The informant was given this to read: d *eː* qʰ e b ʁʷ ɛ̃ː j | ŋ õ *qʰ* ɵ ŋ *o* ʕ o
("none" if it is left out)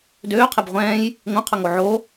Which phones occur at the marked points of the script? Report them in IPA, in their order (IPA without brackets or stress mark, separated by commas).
øː, qʰ, o